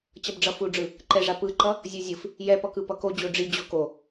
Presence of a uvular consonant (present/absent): absent